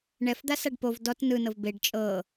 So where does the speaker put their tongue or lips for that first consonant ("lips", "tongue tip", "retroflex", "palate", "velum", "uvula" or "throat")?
retroflex